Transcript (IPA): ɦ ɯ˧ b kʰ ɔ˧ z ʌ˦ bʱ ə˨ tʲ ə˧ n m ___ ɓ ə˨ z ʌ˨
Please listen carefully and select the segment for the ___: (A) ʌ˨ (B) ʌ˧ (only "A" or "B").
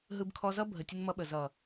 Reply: B